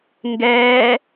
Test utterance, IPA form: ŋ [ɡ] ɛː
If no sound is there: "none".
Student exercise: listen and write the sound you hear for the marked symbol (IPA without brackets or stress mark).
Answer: ɡ